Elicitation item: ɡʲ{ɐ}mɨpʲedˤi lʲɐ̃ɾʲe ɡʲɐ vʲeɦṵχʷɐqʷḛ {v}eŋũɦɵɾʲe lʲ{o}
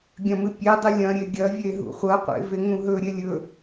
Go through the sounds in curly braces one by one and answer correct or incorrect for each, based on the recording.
incorrect: ɐ̃, correct, incorrect: ɵ

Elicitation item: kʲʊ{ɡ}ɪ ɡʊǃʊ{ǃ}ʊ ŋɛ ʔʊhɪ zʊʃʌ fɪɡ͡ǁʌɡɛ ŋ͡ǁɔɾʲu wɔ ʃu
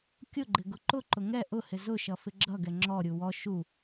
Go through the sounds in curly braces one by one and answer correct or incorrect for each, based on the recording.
incorrect: ɡ͡ǃ, correct

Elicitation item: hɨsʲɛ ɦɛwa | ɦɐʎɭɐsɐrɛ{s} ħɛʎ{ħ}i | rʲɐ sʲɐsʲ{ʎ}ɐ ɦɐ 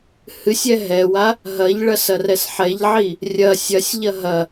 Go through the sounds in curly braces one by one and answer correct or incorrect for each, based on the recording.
correct, incorrect: ʕ, correct

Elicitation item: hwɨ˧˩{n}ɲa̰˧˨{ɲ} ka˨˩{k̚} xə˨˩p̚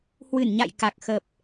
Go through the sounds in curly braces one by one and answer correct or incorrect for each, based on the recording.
correct, incorrect: j, correct

